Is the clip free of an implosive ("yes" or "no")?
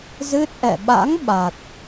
no